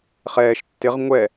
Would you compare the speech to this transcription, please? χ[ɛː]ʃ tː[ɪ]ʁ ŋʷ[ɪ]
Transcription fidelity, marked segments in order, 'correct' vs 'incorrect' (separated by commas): correct, correct, incorrect